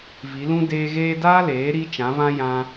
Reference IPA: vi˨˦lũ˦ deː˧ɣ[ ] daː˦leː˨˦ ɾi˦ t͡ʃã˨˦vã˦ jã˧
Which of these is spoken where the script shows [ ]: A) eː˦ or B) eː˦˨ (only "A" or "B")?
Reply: A